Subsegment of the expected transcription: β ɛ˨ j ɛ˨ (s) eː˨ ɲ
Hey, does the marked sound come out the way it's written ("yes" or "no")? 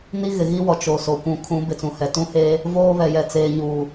no